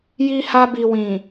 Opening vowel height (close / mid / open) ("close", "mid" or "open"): close